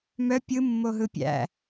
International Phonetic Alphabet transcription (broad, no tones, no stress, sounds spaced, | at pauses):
m œ pʲ ɯ mː o ɦ ɯ pʲ æ̰